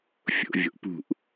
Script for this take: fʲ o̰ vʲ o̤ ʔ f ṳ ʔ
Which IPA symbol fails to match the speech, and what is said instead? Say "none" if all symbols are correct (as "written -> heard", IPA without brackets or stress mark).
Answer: f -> p